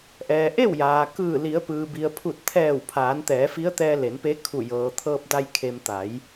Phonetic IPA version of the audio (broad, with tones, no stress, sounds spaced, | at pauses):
ʔ ɛː˩ ʔ e˥˨ w j aː˩ k ɯː˧˩ l i˩˧ ə̯ p ɯː˩ b i˩ ə̯ pʰ u˧˩ t̚ t̪ʰ ɛː˧˩ w pʰ aː˩˧ n t̪ ɛː˩˧ f i˧˥ ə̯ t̪ ɛː˧ l e˩˧ n p e˧˥ kʰ u˧˩ j ɤː˩ t̪ʰ ɤː˧ p̚ d a˧ j kʰ e˧ m t̪ a˩˧ j